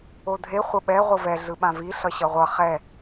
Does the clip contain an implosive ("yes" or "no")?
yes